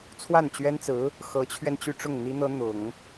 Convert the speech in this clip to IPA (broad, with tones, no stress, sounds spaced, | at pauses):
t͡sʰ w a˥˩ n t͡ɕ ɥ ɛ˥ n t͡s ɹ̩˧˥ | x ɤ˧˥ t͡ɕʰ ɥ ɛ˧ n t͡ɕ y˥˧ ʈ͡ʂ ʊ˥˩ ŋ n̪ i˥ n̪ ɤ˥ n̪ ʊ˨˩˦ ŋ